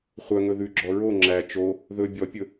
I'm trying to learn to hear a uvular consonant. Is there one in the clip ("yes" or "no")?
yes